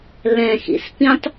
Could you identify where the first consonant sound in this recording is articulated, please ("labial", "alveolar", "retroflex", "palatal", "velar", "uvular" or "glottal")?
alveolar